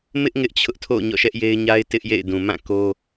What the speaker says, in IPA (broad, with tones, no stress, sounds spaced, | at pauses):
m ɪ˦ ʔ ŋ ɪ˦ ʔ t͡ɕʰ ʊ˦ ʔ tʰ o̰˦˨ ɲ ɔ̰˦˨ ʃ ɛ˦ ʔ j e˦ ɪ̯ ɲ a˦ ɪ̯ t ɪ˦ ʔ j ḛ˦˨ ɪ̯ d ũ˨ m ã˦˨ k o˦